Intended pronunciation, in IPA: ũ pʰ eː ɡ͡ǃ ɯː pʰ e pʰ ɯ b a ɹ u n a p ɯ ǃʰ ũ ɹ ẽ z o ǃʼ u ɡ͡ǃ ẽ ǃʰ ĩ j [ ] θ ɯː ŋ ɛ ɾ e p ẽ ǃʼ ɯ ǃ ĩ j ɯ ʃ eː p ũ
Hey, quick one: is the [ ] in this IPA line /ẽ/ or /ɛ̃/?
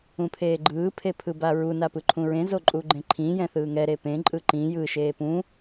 ɛ̃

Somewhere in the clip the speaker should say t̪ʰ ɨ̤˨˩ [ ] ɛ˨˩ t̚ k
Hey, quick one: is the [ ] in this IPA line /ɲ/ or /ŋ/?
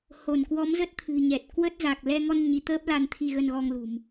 ɲ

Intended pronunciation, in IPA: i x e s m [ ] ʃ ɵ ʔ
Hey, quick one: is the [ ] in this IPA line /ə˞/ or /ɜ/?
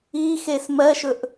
ɜ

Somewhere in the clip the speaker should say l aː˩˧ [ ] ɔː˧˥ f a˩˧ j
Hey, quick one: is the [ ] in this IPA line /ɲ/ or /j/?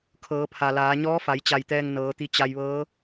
ɲ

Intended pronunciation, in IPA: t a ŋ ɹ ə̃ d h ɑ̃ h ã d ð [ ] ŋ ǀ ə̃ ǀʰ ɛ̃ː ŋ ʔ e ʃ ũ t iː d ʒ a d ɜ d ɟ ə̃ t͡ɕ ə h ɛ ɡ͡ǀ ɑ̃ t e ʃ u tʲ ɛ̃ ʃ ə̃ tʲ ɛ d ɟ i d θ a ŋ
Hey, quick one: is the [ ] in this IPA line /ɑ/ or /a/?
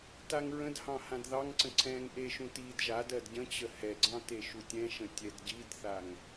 ɑ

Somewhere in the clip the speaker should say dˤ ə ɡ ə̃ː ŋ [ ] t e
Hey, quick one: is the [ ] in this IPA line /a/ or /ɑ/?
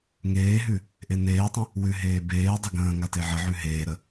a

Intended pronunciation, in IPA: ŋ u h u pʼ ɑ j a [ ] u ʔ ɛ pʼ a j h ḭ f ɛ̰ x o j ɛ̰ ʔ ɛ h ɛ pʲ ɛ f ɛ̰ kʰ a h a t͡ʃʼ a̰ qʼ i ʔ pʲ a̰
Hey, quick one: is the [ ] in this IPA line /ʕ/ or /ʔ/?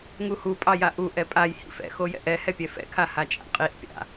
ʔ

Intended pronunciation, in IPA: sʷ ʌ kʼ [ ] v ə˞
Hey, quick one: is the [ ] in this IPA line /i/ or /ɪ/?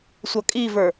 i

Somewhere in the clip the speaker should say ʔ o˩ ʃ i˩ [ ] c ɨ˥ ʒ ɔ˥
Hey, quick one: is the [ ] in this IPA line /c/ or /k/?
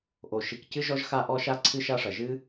k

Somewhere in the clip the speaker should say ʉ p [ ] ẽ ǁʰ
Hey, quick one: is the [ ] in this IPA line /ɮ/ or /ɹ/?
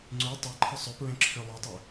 ɹ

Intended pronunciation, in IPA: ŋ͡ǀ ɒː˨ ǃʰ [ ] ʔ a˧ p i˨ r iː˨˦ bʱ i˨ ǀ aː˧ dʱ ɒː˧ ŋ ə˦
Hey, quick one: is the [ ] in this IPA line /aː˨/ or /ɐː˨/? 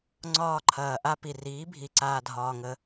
ɐː˨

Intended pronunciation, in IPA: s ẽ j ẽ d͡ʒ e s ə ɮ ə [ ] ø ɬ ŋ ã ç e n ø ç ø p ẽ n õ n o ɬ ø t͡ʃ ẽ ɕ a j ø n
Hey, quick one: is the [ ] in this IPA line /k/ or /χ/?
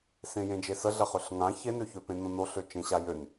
χ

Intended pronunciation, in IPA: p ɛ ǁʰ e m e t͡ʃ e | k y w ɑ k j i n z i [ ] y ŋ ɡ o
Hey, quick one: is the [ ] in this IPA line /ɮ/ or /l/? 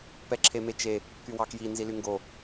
l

